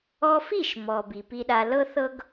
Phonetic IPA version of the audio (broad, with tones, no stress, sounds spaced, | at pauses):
ɔ˦ f i˦˨ ʃ m ɔ˨ b i˨ p i˧ ɗ a˧ l ɤ˦ θ ɤ˦ ɡ